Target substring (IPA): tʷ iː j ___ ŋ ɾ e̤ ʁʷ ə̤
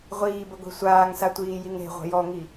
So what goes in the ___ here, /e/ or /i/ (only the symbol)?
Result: i